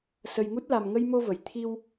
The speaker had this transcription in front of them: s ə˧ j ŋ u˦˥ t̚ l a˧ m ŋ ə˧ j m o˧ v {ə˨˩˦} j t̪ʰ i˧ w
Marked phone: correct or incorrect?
incorrect